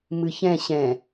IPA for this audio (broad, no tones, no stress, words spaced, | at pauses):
mɨçɛ̃ ɕɛ̃